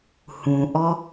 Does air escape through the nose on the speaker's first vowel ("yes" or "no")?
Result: yes